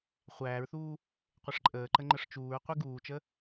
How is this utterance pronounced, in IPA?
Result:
χʷ æː ɹ θ uː | qʷ ə ʂ ǃʼ əː ǃ ə ŋ͡ǃ ə ʂ t͡ʃ uː ɹ qʷ i ɡ uː t͡ʃ ə

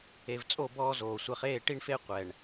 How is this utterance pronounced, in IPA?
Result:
e˨ v t͡sʼ o˦˨ b ɔː˦ z oː˨ sʷ ɛ˨ χ eː˦˨ ʈ i˦ ɳ f e˦ qʷ ɛ˨ ɳ

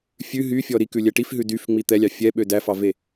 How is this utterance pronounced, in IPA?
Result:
fʲ ʉ ɦ y fʲ ɔ ɾ i k ʉ lʲ ɛ ʈ i f ɦ ʉ d y f ŋ͡m i t̪ ɛ lʲ ɑ fʲ ɛ ɓ ø d æ f ɑ v e

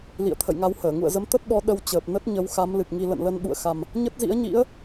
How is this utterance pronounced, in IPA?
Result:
l ḭ˧˨ ə̯ t̪ʰ ə̰˧˨ j ŋ a˧ w h əː˧˩ ŋ ṵ˧˨ ə̯ z ə˨˦ m t̪ ə˦˥ t̚ ɓ ɔ˨˦ ɗ ə˧ w t͡ɕ əː˨˩ p̚ n ə˦˥ t̚ ɲ ə˨˦ w x a˨˦ m l ɨ˨˩ k̚ ŋ i˧ l ə̰˧˨ n l ə˧ n ɓ ṵ˧˨ ə̯ x a˨˩ m | ɲ ə˦˥ t̚ z ḭ˧˥ ə̯ ɲ ḭ˧˥ ə̯

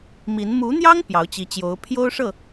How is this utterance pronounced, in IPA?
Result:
m i˧˥ n m u˧˥ n̪ j ɑ˥ ŋ p j ɑ˧˥ ʊ̯ t͡ɕ i˧˥ t͡ɕ j o˧˥ ʊ̯ pʰ j o˥ ʊ̯ ʂ ɤ˥˩

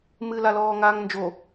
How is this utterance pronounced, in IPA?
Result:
m ɨ l a l ɔː ŋ aː ŋ n d͡ʒ o

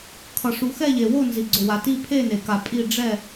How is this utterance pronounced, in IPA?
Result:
kʰ ʌ˨ ʂ u˨ x ɛ˦˨ ʎ e˨ w o˦˨ n z i˨ ɡ͡ǀ o˨ w a˨ t i˦˨ pʰ e˦˨ n e˨ k a˨ pʼ i˦˨ ɖ͡ʐ ɛ˦˨

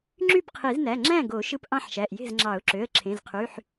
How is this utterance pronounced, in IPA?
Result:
ŋ͡ǁ y˥˨ p qʰ i˨˩˦ z n æ˩˧˩ ŋ͡ǁ æ̃˥˨ ɡ o˨˩˦ ʃ ɯ˧ p ʔ ɑ̃˥˨ ħ ʃ æ˩˧˩ ʔ j e̤˥˨ z ŋ͡ǁ ɑ˨˩˦ ʊ̯ ǁ ø˩˧˩ ə̯ ǁʰ ẽ˩˧˩ z qʰ y˩˧˩ ħ

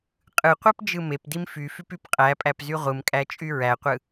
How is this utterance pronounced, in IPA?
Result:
qʼ ɯ qʷ æ p d͡ʒ ɯ m e p d i m f y f y p y p qʼ æ pʼ æ p z y ʁʷ ɯ m kʼ æ t͡ʃʼ y ɹ æ qʷ ɯ

